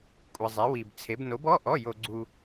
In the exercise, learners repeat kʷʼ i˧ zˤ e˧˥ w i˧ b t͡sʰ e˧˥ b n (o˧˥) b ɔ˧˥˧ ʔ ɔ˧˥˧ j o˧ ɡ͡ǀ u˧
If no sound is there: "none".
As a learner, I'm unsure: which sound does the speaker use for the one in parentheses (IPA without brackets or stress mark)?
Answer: o˧˥